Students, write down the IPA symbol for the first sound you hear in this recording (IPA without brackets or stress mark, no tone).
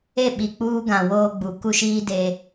e